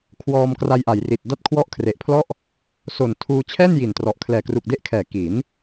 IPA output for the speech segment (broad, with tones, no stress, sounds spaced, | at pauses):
kʰ w ɔː˧ m k r a˧ j ʔ a˩˦ j r i˨˩ t̚ d a˦˥ t̚ kʰ w ɔ˦˥ ʔ kʰ r e˨˩ ʔ pʰ l ɔ˥˩ ʔ | s o˨˩ n tʰ uː˧ t͡ɕʰ ɛː˥˩ n j i˨˩ n t r ɔ˨˩ ʔ kʰ l ɛː˨˩ k r u˨˩ k̚ d e˦˥ ʔ kʰ ɛː˨˩ k i˩˦ n